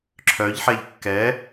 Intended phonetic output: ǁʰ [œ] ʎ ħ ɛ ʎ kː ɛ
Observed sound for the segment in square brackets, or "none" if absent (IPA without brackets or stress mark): œ